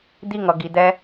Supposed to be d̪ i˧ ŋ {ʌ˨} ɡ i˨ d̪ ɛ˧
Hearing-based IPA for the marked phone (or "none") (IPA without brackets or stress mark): ʌ˨